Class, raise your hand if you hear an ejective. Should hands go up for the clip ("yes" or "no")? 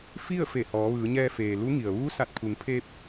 no